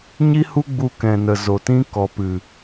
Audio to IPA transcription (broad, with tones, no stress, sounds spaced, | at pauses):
ɲ i˦ h u˦ ɡ͡b u˧ k ɛ̃˨ n ə˨ z o˨ t ĩ˦ k ɔ˨ p ɨ˨